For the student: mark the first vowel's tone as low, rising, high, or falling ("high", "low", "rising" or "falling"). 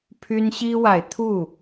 high